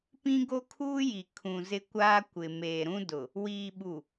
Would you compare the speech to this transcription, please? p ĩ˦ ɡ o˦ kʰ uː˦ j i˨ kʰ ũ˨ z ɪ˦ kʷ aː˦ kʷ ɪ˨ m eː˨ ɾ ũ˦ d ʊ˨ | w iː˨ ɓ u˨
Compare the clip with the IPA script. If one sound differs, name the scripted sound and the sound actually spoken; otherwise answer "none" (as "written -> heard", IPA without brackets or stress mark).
none